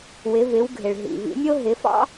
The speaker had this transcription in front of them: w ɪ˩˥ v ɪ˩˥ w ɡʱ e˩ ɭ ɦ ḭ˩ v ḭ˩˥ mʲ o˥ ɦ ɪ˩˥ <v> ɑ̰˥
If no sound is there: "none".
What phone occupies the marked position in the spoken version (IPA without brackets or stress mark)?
f